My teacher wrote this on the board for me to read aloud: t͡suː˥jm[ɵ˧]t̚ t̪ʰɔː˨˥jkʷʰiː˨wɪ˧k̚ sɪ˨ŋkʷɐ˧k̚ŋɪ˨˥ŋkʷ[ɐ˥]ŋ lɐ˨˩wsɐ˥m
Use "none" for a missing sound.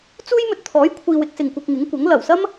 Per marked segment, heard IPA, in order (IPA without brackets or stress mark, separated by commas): ɵ˧, ɐ˨˥